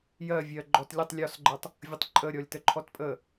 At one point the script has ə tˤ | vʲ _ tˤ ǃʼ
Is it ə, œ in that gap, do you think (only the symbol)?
ə